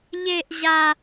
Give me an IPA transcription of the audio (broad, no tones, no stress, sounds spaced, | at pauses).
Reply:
ʎ e ʔ ʑ a